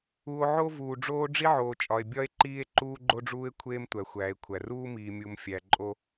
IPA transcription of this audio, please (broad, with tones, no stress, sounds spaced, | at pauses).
u˨ o̯ ʕ o˦ v uː˨ ɖ͡ʐ oː˦ ɖ͡ʐ i˦ ʕ oː˨ t͡ʃʼ ɒ˨ e̯ bʲ ɒ˦ e̯ ǃ iː˦ e̯ ǃ uː˦ ɡ͡ǃ o˦ ɖ͡ʐ uː˦ e̯ kʷʰ eː˦ m tʷ æ˨ xʷ æː˨ e̯ kʷʰ æ˨ r uː˦ m iː˨ mʲ u˨ m fʲ æ˨ ǃʼ o˦